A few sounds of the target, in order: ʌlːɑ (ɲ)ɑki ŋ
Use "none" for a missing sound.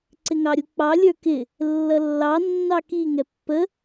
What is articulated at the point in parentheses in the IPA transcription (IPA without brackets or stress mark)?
nː